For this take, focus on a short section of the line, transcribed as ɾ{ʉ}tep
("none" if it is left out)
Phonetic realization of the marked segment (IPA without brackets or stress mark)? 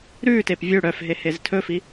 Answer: ʉ